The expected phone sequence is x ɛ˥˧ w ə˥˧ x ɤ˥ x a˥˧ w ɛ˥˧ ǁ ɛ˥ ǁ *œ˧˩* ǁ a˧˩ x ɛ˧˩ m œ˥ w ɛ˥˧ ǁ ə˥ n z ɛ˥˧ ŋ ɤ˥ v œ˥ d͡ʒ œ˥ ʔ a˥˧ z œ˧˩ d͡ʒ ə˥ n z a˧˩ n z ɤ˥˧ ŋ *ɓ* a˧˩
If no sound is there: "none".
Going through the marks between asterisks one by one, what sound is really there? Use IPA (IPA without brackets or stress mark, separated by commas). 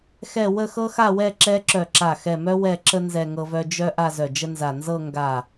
œ˧˩, ɡ